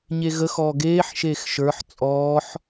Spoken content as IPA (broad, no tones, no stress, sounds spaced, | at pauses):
ɲ e ɣ ə x ɔː ɡ eː ħ ʃ eː x ʃ ə˞ ħ t͡sʼ ɔː ħ